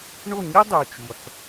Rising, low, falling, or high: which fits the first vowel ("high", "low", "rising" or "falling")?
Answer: falling